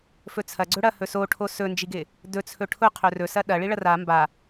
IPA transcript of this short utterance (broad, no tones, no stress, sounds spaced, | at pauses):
f ɵ t͡sʰ ɐ ɡ͡ǀ ɵ ɽ ɐ h ɵ s o ʈʰ o s ɵ n d͡ʒ i ɡ ɪ | d ɵ t͡sʰ ɵ ʈʰ ʊ qʰ ɵ r ɵ s ɐ ɗ ɐ ɭ i ɭ ɐ r a m b a